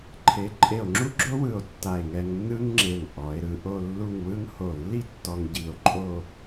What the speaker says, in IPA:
ǃʰ e˩˧ ǃʼ e˧˩ o̯ ŋ͡ǁ u˥ ɡ͡ǁ o˥ w ɯ˧˩ o̯ tː a˧˩ e̯ ŋ ɛ˧ ŋ nː ɯ˥ ŋ ŋ͡ǁ e˧˩ ŋ ʔ ɔ˩˧ e̯ ɾ ɯ˧ ʔ o˥˧ lː u˥˧ ŋ w ɯ˥ ŋ h o˧˩ lː i˥ tː ɔ˧ ŋ ɟ i˧˩ o̯ ǃʼ o˥˧

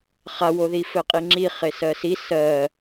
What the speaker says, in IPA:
χ a w o ð i f ɘ qʼ i ŋ͡ǁ i χ e s ɜ s i s ɜ

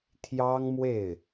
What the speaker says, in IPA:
t̪ʰ j ɑ˥ ŋ m w e˥˩ ɪ̯

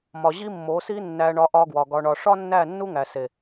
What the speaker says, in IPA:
m ɒ˨ ʑ i˦ mː o˨˦ s i˦ nː æ˧ ɳ ɒ˧ ʔ ɒ˧ ɡ w ɒ˨ ɡ ɒ˨ ɳ ɒ˨ ʂ ɒ˦ nː æ˦˨ nː u˦ ŋ æ˨ s e˨

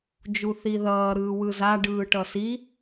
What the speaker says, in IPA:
d͡ʒ u θ i ð ʌː ɾ ɯː w ɯ z a ɖ ɯː ʈ ʌ s i

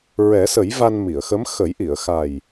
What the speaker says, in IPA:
ɹ ɛ˨˩˦ s ə˨˩˦ j v a˧ n m i˨˩˨ ə̯ x ə˧˥ m x ə˨˩˦ j ʔ i˨˩˨ ə̯ x a˨˩ j

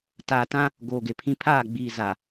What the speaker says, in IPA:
t aː˨ t ã˦ | ɡ oː˨ ɡ e˨ pʰ ĩ˦ pʰ aː˦˨ ɡ͡b iː˨ z a˨

